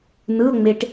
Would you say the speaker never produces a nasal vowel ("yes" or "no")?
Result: yes